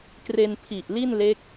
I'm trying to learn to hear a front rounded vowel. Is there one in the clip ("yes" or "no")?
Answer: no